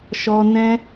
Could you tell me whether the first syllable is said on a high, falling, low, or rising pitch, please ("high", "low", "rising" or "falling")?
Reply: high